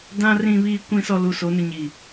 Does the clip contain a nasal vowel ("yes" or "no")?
yes